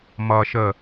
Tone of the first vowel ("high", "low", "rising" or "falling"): low